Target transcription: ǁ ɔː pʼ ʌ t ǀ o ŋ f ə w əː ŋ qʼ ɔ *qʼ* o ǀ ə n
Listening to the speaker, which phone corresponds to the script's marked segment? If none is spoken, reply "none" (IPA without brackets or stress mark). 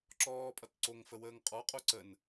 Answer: qʼ